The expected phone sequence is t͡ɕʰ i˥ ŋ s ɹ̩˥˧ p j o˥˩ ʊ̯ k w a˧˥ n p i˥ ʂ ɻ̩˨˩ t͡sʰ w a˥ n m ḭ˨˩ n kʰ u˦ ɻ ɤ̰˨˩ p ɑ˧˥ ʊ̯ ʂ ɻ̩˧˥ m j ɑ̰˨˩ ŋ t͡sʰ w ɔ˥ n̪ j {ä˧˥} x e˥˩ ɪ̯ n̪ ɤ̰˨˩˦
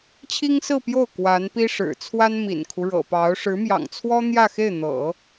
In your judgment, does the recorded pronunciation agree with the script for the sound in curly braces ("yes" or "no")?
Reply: no